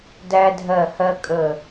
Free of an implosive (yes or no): yes